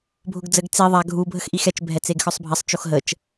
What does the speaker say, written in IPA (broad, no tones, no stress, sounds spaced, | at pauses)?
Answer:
bʱ ʊ ɡ d͡z ə ɡ t͡s i ðˤ a ɡʱ u bʱ ə x ʔ i x ɛ t͡ʃ bʱ ɛ t͡s e ɡ x œ sˤ bʱ ɐ sˤ t͡ʃ o x ɦ ə t͡ʃ